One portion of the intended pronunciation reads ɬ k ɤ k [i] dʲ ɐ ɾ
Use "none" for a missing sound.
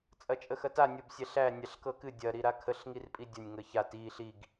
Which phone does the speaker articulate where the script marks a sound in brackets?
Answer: ɨ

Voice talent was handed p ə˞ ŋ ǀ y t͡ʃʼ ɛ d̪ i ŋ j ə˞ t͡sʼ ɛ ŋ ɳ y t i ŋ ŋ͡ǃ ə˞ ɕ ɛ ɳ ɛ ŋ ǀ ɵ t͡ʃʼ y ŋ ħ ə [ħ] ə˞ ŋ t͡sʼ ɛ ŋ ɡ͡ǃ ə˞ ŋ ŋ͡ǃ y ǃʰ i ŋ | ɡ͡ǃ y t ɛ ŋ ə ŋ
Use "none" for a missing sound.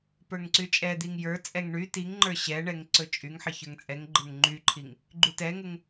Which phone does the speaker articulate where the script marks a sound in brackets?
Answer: ç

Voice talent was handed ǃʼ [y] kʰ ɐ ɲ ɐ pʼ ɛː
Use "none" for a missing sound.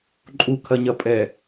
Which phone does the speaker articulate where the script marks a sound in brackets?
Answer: u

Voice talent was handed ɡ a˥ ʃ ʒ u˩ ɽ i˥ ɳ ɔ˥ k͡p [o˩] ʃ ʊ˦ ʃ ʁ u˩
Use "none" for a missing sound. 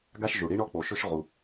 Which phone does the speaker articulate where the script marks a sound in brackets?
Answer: o˩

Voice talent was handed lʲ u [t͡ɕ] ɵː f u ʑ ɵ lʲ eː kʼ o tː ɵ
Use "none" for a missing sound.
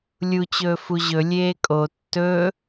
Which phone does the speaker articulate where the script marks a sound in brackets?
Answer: t͡ɕ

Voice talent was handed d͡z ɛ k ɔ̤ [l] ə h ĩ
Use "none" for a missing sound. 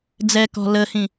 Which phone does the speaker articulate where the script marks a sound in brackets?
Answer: l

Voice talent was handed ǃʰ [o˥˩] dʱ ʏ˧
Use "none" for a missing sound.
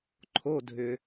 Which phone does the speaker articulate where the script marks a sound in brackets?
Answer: o˧˥˧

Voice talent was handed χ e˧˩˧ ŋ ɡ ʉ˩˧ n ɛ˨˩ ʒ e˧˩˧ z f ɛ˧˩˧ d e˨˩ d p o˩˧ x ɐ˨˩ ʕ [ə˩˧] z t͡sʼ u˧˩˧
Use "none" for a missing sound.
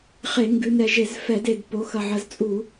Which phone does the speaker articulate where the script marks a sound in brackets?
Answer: ə˩˧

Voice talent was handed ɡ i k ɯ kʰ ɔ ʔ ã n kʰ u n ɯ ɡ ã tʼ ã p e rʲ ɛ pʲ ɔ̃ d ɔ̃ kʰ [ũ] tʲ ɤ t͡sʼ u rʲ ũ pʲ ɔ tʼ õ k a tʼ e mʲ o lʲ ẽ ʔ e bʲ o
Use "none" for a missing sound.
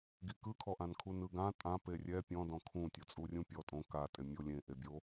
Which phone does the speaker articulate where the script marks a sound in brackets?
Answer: ũ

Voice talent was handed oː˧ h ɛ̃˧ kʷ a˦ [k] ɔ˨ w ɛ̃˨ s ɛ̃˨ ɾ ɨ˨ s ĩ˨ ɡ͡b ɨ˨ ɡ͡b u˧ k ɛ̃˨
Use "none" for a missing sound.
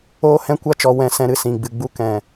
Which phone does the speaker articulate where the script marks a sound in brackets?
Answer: t͡ʃ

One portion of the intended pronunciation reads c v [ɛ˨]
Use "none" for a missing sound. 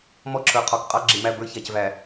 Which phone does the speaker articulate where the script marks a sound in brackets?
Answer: æ˨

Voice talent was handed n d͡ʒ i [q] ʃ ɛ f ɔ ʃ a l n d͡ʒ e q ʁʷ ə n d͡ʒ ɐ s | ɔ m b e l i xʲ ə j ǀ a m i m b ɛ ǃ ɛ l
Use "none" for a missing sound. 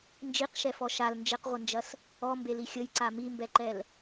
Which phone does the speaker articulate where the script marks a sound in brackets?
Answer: q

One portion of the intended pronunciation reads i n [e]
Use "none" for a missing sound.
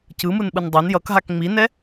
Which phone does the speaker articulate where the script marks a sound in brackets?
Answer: ɛ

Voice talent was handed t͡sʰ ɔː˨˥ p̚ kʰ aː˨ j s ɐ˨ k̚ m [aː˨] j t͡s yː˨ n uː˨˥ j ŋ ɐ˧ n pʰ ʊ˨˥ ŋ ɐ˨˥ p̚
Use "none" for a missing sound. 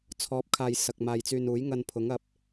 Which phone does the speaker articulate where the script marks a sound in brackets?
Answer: aː˨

